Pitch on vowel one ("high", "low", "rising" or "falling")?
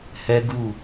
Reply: high